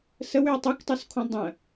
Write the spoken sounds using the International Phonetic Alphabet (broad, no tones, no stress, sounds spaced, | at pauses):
s ə w ʏ ə̯ tˤ u k tˤ u s kʰ õ dˤ ə̃